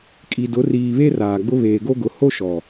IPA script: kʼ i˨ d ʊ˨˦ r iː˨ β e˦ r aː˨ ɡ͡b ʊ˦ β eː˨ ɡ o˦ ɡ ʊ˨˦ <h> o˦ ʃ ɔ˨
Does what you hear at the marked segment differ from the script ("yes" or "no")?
no